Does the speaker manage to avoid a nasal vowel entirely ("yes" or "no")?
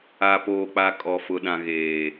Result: no